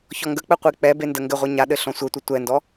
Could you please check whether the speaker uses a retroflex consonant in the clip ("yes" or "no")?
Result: no